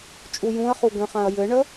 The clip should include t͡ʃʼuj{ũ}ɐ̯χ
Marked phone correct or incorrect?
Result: correct